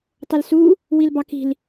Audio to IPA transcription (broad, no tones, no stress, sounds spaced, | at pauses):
tˤ ɘ l s u | w i l b ɑ k i̤ l